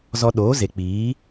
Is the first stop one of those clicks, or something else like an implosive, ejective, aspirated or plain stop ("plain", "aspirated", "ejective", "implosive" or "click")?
implosive